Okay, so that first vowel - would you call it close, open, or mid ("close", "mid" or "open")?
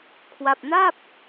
open